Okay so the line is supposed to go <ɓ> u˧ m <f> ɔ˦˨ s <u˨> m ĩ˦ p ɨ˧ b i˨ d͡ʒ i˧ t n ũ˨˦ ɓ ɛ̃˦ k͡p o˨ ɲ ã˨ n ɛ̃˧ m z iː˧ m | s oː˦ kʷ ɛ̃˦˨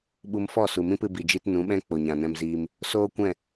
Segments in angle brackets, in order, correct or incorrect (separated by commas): correct, correct, correct